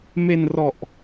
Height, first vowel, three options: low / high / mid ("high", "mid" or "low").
mid